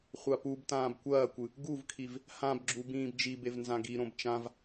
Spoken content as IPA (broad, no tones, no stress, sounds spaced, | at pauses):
χʷ a p u b t ãː b kʷ ɐː kʷ ɨ | ɡ u v kʰ i v | h ã b ɡ͡ǁ u b ĩː b d͡ʒ i b e v n z ã ɡ i ɾ õ b t͡ʃ ã v